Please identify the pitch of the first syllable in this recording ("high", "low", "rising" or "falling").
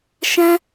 high